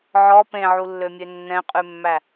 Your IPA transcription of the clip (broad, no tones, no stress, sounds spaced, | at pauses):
ʕ ɔ p ẽ ʕ u lː ø mʲ ø nː ɛ̃ qʼ ʉ mː æ